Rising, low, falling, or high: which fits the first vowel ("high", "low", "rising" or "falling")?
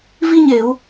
high